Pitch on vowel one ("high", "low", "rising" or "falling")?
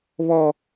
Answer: high